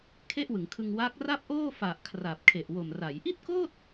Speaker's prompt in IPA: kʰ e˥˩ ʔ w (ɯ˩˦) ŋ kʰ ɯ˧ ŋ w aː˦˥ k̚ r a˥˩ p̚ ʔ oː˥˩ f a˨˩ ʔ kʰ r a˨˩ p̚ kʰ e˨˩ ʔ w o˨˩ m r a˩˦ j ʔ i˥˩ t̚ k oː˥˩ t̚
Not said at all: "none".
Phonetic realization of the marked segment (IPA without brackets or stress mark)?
ɯ˩˦